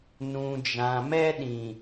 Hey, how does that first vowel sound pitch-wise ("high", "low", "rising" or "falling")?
low